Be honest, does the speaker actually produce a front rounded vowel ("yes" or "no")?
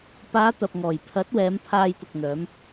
yes